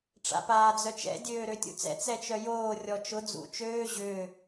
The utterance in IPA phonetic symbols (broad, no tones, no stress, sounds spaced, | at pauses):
ʈ͡ʂ a̰ p aː d͡z œ t͡ʃ ɛ̰ dʲ øː ɾ ø tʲ ṵ t͡s ɛ̰ t͡s ɛ t͡ʃ œ j oː rʲ ɔ t͡ʃ ʊ d͡z ṵ t͡ʃ øː ʑ ʏː